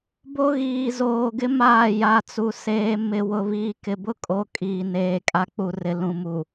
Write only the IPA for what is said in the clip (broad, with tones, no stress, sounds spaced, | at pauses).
b o˦ ɣ iː˨ z oː˨ ɡ ɪ˦ m aː˦˨ j a˨ t͡s u˨ s eː˨ m ɪ˨ w ʊ˨ β iː˨ k ɪ˨ b ʊ˦ kʼ o˨˦ kʼ iː˨ n eː˨ kʼ a˦ k͡p u˨ r ɪ˨ l ũ˨ m u˨